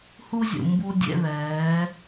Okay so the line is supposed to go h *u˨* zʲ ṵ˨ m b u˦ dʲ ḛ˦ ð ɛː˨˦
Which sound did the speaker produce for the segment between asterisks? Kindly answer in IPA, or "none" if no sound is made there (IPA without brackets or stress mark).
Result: u˦